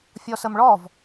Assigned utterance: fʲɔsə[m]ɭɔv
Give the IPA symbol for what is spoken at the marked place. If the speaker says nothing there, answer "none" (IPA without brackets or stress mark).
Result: m